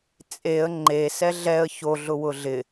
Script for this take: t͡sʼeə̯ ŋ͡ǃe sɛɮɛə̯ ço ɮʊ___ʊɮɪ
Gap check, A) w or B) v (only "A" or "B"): A